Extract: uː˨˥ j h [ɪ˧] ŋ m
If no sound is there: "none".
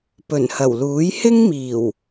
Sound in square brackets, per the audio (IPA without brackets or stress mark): ɪ˥